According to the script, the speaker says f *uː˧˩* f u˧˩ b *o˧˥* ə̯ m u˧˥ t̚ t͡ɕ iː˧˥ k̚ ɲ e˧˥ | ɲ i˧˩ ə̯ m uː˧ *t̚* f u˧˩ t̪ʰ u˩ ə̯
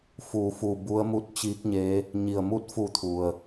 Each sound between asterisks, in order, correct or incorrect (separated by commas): correct, incorrect, correct